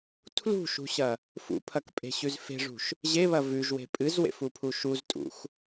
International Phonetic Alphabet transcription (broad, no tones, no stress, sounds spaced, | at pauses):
tʰ l ṳ ʃ ṳ ɕ ɐ | f ṵ pʰ ɐ k pʼ e̤ ɕ ʉ z f e̤ ʐ ṳ ʃ | ʑ e β ɐ v ʉ ʒ w e̤ pʼ ɨ z w ḛ f u pʰ u ʃ u z tʼ ṵ x